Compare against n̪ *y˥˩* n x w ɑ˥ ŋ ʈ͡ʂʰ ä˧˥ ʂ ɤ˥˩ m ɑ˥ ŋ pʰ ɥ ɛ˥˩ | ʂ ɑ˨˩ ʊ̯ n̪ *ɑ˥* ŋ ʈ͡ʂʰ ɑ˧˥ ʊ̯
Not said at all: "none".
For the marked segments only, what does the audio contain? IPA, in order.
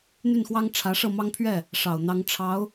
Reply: y˥˩, ɑ˧˥

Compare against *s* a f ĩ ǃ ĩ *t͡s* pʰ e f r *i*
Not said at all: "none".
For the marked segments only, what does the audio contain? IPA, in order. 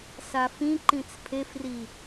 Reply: s, t͡s, i

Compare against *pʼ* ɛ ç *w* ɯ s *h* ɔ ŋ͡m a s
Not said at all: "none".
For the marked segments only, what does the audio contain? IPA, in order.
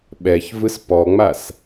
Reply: ɓ, v, p

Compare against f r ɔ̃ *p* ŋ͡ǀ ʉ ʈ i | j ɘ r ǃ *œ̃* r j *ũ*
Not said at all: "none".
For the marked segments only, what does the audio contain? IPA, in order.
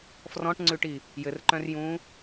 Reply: ʈ, œ̃, ũː

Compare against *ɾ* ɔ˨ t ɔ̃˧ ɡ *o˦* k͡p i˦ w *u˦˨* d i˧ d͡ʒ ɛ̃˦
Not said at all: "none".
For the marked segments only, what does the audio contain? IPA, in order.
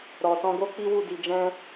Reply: ɾ, o˦, u˦˨

